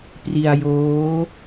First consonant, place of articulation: labial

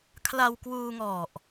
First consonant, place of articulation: velar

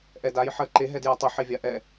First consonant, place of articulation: glottal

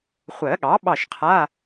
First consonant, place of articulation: uvular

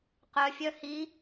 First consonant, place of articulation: uvular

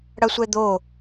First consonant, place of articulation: retroflex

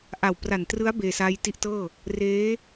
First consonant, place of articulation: glottal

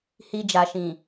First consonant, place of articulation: glottal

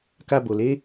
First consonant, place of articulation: velar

